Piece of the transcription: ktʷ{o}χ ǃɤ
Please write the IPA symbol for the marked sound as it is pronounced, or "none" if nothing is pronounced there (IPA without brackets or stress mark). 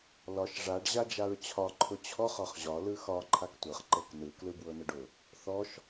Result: ɤ